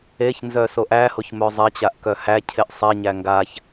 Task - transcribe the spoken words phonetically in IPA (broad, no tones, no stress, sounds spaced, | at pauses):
e ç n z œ s o ʔ æ h o ç m œ zˤ ɛ t͡ɕ a ʔ k œ h æ cʰ e ʔ sˤ e ɲ æ ŋ ɡ a ç